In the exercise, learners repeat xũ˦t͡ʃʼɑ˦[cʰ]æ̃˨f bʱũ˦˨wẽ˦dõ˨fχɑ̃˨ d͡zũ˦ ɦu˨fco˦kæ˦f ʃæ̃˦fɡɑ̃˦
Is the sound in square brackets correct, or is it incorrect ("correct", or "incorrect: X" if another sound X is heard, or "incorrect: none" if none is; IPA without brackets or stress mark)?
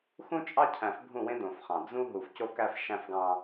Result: correct